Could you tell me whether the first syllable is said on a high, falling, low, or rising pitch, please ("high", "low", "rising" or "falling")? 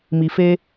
low